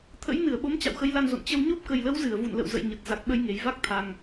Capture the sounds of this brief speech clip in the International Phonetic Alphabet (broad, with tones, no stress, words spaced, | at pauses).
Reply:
t̪ʰə̰˧˥jnɨ˧˩ə̯ɓo˨˦m t͡ɕa̰˧˨wxə˨˦jla˧nzo̰˧˨n t͡ɕə˧w ɲo˦˥p̚kə˨˩jlə˨˦w zɨ˧˩ə̯vṵ˧˨nlə̰˧˨w zə̰˧˨j ɲə˨˩t̚ za˨˩k̚ɓə˧jŋe˨˩j va˦˥k̚t̪ʰa˨˩ŋ